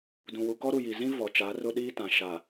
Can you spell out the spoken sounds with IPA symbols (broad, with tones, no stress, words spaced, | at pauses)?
dũ˨wu˨kɔ˦ ɾu˨ji˨zĩ˦ vɔ˨ t͡ʃaː˨˦rʊ˦ ɗiː˦tã˨ ʃa˨